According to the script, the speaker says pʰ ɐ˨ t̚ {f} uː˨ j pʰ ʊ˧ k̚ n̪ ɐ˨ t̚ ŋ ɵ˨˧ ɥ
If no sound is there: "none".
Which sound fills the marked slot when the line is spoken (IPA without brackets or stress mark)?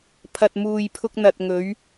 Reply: m